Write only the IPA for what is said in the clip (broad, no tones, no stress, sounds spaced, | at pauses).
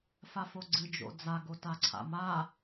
f a f o ɡ͡ǀ ɨ d͡ʒ o̰ d͡z a ɡ o t a ǀʰ a̰ m a